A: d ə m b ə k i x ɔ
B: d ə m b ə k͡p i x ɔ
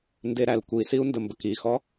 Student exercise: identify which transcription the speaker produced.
A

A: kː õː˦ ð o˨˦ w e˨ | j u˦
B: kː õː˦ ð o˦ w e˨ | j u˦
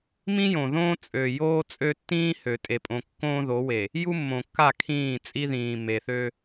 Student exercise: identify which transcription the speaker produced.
A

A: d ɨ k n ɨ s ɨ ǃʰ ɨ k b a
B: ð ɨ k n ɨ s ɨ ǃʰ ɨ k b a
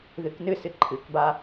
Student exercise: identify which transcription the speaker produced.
B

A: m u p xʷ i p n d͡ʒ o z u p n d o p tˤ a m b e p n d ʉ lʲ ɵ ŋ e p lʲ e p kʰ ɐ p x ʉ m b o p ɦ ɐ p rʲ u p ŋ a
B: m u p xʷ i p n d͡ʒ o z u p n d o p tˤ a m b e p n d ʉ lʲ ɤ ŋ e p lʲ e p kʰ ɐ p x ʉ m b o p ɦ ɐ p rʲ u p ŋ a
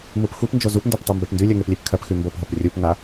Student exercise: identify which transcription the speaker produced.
A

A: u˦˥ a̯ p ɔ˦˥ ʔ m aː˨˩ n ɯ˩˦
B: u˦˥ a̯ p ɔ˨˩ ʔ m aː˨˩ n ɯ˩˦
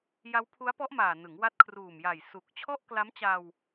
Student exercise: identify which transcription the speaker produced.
A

